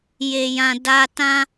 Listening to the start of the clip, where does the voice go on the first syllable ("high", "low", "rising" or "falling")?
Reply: low